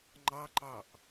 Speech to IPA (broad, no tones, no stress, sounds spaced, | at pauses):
ŋ͡ǃ ɑ ǃ ɑ ʔ